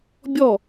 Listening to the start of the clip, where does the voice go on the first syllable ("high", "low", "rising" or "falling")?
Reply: falling